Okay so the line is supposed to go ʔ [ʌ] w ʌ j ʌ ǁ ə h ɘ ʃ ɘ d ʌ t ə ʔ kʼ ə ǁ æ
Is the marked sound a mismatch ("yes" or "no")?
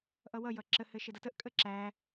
no